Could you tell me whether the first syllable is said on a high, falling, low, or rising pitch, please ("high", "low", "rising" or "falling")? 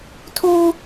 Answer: high